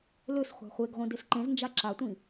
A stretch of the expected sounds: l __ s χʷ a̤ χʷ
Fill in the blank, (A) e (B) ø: B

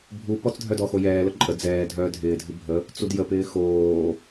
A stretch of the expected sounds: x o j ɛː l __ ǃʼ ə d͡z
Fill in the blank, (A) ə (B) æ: A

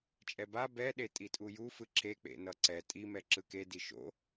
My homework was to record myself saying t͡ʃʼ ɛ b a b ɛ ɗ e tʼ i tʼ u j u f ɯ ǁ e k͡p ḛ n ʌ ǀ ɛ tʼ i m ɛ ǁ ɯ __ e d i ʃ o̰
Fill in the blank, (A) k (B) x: A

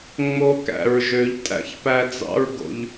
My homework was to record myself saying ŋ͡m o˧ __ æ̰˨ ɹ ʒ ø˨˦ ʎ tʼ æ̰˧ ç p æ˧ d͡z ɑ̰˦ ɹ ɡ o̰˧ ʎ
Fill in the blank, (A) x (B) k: B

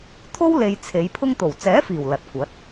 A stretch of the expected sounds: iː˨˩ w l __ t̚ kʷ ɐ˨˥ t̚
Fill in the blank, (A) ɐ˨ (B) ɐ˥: A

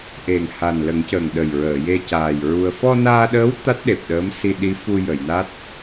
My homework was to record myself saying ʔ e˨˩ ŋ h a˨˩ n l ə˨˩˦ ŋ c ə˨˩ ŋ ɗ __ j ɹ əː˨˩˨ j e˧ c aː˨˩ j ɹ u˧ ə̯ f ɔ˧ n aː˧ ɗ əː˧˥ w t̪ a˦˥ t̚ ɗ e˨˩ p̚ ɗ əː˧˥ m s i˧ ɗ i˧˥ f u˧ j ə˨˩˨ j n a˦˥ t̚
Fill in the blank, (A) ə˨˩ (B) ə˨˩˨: A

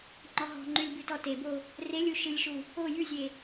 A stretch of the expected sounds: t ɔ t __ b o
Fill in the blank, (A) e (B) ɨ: A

